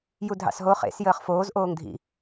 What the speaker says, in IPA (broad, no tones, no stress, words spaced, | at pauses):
judʱɑ̰sɦo χḛs jəːχfoːz ʔoːŋdʱḭ